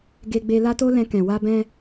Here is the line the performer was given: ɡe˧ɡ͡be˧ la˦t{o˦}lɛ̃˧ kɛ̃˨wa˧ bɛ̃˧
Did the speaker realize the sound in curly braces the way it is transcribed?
yes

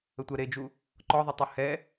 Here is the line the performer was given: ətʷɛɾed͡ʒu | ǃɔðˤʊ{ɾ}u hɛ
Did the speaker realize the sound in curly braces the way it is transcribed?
no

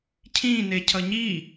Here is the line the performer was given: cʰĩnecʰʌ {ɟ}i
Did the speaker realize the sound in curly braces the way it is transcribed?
no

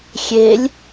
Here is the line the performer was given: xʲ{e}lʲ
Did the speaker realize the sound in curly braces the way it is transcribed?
yes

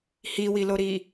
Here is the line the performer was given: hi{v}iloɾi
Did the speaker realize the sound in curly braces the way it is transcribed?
no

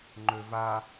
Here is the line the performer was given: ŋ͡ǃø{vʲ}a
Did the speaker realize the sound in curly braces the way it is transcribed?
no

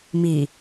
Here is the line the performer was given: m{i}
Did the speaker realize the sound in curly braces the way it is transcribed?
yes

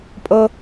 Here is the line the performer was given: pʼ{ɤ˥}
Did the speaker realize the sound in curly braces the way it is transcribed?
yes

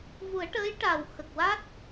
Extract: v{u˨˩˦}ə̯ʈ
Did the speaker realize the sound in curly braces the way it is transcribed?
yes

